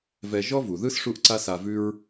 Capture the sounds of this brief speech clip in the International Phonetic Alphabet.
vɛ˧ ʒɔ˥vu˩ðɯ˥s ʂu˥ʔǀa˥sa˧vʉ˥ɹ

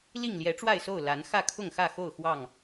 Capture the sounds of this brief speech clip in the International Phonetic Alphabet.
li˥˨ŋ ljɛ˨˦ʈ͡ʂwa˥˨ɪ̯so˥˨ʊ̯ la˨˦n xä˥˨kʰʊ˥˨ŋxä˥˨xo˥˨ʊ̯ xwɑ˥˨ŋ

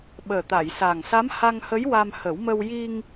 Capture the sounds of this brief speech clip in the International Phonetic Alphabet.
ɓəː˨˩t̪a˨˩˨jsa˨˩ŋsa˧˥m ha˧ŋhə˧˥jwa˧mhə˨˩˦w mə˧w ji˧ŋ

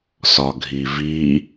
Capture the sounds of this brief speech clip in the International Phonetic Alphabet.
sɒɡʱivi

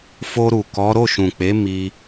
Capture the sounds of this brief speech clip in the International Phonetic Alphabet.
fo˧ɾu˨ kɔ˨˦ ɾo˦˨ʃũ˨k͡pe˨˦ mi˧

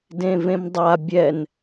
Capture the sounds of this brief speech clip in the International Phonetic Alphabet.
dẽvẽmdˤa bʲɛn

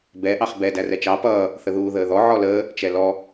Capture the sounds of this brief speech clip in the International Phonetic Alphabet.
bɛ ʔɑχbɛ dærɛt͡ʃɑ pʌː | θəðuːðəːðɔ ʕɔləː | t͡ʃɛlɔ

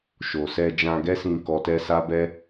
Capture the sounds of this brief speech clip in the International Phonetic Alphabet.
ʃo˨sɛ˧ d͡ʒã˧ɡɛ˦sĩ˧ kɔ˧tɛ˦sa˦bɛ˦

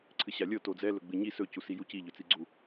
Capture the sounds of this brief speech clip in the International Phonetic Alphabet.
ǀʰɨɕalʲɤ tod͡zɛ lɵɡ͡bɨɲi sɵ cusijuci ʎɵt͡siɡ͡ǀu

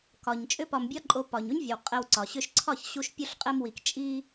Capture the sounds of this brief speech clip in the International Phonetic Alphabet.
kɒ˨ɲ t͡ʃʼʏ˦pɒ˧mbʲɒ˦ǃʼo˧ pɒ˨ɲo˦ɲvʲə˨w qʼɘ˧wǀɒ˨ ɕʏ˧ʃǀʰɒ˦˨çɕu˧ʃ pʲu˧ɬqʼɘ˧mwi˨k t͡ʃʼi˧

